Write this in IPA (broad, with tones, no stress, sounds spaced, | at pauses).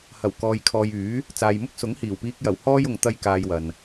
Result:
h ɐ˨˩ w k ɔː˨ j kʰ ɔː˨ j yː˨˥ | t͡s aː˨ j m ʊ˥ k̚ s ʊ˨˥ ŋ h iː˨˩ w p iː˧ k̚ j ɐ˨˩ w h ɔː˥ j ʊ˨ ŋ t̪ ɐ˥ j k aː˧ j w ɐ˨ n